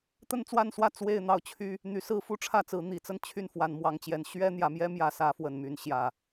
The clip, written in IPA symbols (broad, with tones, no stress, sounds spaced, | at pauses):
t̪ ə˦ n t͡s w a˥˨ n s w ä˥˨ t͡s w e˥˨ ɪ̯ n̪ ɑ˥˨ ʊ̯ t͡ɕʰ y˦ | n̪ y˨˦ s ɹ̩˦ f u˦ ʈ͡ʂʰ ä˥˨ t͡s ɹ̩˨˦ n̪ i˨˩ t͡s ə˦ n t͡ɕʰ y˥˨ n f w a˨˦ n m w ɑ˨˩ ŋ t͡ɕ j ɛ˨˦ n ɕ ɥ ɛ˦ n̪ j ä˨˦ m j ɛ˦ m j ä˨˦ s ä˨˦ f w ə˨˩ n m y˨˦ n ɕ j ä˨˩